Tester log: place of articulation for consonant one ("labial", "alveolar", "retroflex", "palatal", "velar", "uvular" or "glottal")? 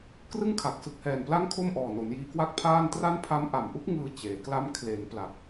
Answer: velar